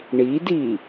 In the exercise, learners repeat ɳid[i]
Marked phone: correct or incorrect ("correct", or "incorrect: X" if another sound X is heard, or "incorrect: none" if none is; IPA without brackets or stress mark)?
correct